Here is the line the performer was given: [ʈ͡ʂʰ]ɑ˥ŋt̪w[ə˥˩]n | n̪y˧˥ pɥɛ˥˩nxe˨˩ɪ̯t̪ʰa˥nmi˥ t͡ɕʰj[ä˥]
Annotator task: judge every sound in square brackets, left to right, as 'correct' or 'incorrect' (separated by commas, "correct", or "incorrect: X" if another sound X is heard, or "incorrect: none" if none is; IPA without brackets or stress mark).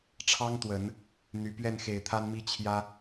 correct, incorrect: ə˨˩˦, correct